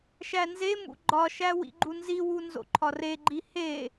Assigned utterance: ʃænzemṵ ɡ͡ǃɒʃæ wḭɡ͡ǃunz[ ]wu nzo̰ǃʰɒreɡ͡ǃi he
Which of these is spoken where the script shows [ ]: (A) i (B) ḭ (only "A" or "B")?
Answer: A